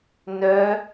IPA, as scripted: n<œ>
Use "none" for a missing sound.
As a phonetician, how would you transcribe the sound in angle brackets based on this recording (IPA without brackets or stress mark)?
œ